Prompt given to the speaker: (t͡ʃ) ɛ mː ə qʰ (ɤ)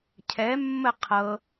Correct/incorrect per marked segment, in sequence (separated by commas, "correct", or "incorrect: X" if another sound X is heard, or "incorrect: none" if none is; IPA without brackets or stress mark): incorrect: cʰ, correct